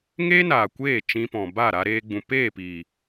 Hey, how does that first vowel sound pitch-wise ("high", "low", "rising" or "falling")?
high